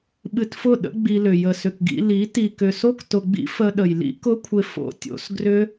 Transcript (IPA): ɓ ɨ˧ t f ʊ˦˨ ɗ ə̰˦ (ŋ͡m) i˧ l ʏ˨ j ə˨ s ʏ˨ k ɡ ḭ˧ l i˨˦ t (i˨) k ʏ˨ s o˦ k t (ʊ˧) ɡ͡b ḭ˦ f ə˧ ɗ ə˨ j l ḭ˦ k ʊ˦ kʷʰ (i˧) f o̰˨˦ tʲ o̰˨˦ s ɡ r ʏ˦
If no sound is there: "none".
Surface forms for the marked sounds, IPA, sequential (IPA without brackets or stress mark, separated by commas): ɡ͡b, i˨, ʊ˧, ɪ˧